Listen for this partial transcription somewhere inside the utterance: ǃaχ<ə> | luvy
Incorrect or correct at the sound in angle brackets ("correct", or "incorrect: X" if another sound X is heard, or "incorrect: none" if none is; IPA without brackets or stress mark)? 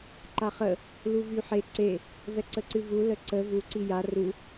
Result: correct